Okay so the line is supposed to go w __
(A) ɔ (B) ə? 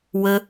B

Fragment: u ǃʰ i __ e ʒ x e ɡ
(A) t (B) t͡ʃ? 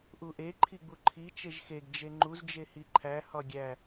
B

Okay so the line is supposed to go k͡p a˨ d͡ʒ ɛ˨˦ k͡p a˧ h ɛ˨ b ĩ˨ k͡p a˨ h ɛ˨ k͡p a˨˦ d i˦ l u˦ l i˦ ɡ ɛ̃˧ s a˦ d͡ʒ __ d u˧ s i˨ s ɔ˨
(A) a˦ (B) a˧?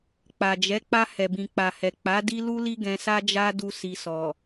A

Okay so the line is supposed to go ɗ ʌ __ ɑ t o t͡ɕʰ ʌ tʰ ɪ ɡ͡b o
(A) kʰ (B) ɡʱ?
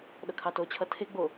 A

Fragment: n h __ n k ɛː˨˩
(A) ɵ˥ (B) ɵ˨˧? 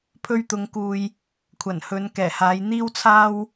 B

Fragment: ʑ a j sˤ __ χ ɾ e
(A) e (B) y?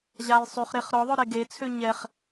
B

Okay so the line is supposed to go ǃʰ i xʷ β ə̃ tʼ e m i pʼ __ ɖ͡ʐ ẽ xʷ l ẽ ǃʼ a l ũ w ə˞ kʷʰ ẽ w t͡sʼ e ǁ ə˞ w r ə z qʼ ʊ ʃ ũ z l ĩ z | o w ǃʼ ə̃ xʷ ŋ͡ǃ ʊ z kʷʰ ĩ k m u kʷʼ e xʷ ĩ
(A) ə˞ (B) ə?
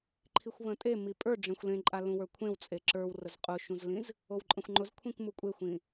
A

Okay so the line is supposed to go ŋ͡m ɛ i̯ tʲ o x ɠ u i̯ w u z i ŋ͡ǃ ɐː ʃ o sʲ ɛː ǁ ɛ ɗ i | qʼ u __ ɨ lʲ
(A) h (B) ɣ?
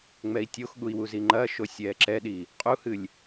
A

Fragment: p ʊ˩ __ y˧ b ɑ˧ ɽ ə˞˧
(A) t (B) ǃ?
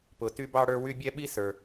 A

